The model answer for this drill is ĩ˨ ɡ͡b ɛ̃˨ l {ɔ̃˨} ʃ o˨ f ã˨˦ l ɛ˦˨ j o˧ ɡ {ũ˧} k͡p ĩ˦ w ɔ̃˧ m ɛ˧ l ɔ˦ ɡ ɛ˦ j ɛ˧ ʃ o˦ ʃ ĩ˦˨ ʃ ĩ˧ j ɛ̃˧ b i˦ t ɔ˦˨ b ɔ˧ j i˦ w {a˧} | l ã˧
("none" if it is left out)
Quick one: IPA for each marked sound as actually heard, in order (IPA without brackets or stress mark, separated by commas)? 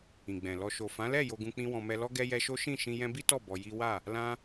ɔ˨, ũ˧, a˦˨